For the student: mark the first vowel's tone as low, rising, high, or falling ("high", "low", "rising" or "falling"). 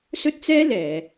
high